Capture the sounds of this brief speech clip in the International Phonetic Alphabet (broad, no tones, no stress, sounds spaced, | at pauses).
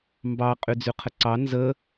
m b ɑ qʼ y d͡z y qʰ ə ǀ ɑ n z ə